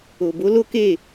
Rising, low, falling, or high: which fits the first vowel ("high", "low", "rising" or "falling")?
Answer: low